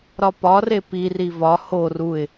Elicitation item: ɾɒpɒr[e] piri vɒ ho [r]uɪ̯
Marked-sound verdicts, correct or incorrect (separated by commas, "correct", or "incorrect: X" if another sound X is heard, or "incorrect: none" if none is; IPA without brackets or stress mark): correct, correct